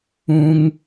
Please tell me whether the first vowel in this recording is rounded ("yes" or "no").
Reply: yes